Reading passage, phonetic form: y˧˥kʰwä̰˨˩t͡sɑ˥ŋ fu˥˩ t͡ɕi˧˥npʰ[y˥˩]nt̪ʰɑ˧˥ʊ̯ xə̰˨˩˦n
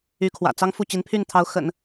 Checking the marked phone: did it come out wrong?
no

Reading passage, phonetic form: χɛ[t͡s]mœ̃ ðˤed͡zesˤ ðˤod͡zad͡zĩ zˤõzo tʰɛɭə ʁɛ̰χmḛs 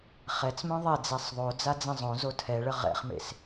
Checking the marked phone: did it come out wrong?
no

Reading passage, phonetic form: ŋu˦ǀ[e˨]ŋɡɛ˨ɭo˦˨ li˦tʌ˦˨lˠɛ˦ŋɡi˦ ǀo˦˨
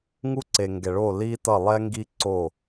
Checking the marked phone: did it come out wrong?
no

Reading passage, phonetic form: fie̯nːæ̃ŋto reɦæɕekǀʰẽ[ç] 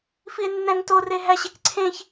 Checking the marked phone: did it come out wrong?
no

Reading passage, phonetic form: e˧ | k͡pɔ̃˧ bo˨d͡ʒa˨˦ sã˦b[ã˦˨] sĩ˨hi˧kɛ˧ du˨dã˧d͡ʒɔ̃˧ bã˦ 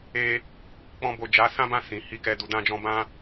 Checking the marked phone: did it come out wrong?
no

